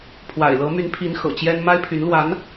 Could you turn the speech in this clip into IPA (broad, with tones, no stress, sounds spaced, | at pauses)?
pʰ w a̰˨˩ ɪ̯ l ɤ˧˥ m y˧˥ n pʰ i˧˥ n x ɤ̰˨˩ t͡ɕ j ɛ˥ n m a˥ ɪ̯ pʰ y˧˥ n l w a˧˥ n